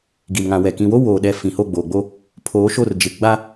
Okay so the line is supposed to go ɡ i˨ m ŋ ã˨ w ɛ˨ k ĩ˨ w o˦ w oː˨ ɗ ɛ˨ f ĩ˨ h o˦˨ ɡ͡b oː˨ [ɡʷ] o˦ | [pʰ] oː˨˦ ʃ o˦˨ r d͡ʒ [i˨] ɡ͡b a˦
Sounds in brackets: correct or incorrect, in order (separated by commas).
incorrect, correct, incorrect